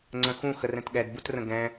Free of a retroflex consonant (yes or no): yes